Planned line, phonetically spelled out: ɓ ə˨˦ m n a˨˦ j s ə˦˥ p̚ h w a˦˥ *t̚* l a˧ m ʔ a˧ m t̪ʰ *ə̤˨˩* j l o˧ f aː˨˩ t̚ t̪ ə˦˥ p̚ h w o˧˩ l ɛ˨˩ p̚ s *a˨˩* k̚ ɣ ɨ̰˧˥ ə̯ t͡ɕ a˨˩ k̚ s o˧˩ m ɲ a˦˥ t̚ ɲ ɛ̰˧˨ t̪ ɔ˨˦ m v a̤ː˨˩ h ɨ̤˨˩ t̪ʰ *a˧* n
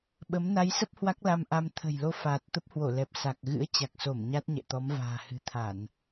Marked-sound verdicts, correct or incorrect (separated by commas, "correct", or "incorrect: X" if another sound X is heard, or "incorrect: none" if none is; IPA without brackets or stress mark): incorrect: k̚, correct, correct, incorrect: a˧˩˨